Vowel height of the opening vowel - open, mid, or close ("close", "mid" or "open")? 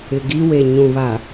close